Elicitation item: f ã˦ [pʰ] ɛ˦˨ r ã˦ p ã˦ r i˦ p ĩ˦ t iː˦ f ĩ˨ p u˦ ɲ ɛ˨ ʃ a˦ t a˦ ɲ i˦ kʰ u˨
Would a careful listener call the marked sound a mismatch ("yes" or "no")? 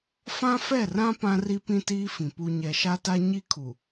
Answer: yes